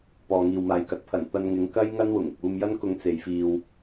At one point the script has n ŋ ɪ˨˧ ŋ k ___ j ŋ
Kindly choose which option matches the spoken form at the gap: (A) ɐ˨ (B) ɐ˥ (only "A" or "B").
B